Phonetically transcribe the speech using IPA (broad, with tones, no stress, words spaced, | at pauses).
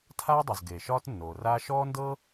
tʰaː˥dˤɵ˩z ɡeː˩ʃɒː˥tnːoː˩raː˥ ʃɔː˥ndɤ˥